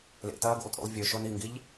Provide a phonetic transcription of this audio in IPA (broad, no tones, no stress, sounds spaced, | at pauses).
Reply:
l ḛ t ɐː ɡ ṵ lˠ tʼ ṵ lˠ vʲ ɵ ʃ o n i ŋ ɡ i ʎ